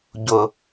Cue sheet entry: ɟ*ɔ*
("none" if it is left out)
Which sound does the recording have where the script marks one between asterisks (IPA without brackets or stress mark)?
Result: ʊ